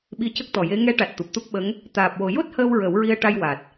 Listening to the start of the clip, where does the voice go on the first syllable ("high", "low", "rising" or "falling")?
rising